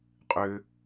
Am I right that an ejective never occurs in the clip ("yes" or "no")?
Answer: no